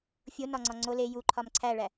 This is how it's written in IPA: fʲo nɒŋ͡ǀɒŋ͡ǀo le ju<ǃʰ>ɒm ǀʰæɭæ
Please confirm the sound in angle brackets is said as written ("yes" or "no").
yes